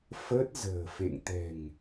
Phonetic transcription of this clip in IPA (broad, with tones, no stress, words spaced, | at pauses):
fəː˦˥t̚ zə̤ː˨˩fḛ˧˨ŋ t̪ɛ̤˨˩ŋ